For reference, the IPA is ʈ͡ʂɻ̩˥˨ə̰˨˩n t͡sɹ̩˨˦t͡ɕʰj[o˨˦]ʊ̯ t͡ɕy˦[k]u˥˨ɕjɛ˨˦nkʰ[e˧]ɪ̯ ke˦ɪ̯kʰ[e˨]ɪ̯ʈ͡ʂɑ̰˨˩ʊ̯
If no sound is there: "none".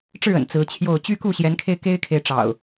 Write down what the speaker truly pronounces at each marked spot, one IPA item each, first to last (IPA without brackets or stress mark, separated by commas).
o˥˨, k, e˧, e˨